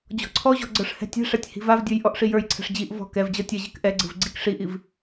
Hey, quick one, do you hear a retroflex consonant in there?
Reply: yes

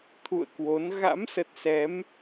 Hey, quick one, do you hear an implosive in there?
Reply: no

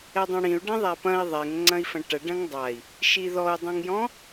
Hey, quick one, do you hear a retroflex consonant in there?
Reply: yes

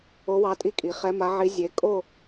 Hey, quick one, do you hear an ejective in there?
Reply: yes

